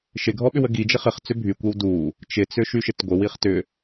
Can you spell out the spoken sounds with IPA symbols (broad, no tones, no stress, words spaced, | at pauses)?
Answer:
ʃɪɡʱɔɓʏw əɡid͡ʒɪ χɪχ t͡sʏbʱykʷew du | t͡ʃɪt͡sʏ ʃyʃɪtɡʷɪ wiχtʏ